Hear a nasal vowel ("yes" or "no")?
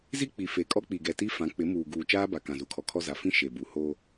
yes